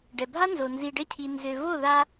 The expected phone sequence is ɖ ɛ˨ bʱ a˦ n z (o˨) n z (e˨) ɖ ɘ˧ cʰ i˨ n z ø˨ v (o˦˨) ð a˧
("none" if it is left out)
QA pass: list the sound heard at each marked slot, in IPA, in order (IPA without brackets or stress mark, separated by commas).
o˨, i˨, o˦˨